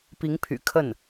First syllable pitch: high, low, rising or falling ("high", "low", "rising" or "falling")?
rising